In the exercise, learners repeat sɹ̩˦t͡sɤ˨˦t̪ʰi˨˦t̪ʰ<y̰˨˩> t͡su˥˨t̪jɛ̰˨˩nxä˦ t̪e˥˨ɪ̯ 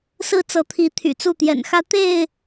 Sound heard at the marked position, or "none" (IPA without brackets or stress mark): y̰˨˩